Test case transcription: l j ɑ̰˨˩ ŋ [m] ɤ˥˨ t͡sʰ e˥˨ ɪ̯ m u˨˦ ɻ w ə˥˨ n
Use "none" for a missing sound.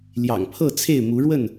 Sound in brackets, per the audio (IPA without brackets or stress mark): pʰ